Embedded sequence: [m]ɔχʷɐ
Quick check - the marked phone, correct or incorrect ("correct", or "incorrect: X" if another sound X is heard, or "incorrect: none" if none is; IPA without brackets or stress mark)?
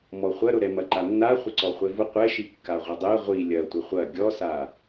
correct